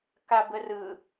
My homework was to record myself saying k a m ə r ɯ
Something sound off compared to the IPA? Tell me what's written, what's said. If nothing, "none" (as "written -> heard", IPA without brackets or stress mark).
m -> b